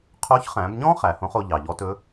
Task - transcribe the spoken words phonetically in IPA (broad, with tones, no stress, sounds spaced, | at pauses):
qʰ o˧˥ ç χ æ̃˩˧ b ɲ ɔ̃˥ χ æ˩˧ h õ˧˥ χ o˧ ʎ ɑ˩ ʎ ɔ˧˥ t ɵ˧˥